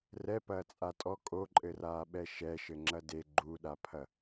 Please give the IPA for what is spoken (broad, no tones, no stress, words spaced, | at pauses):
rɛpɐːt͡sʼa tʼɔ kʼoǃʼɘraːɓɛ ʃɛʃɘŋ͡ǁɐ de ɡ͡ǃuɗapʰɐ